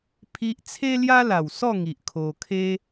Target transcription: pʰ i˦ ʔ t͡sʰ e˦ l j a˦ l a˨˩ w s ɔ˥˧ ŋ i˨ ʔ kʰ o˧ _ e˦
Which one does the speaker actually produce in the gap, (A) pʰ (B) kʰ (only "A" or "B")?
B